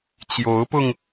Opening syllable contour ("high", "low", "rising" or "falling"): rising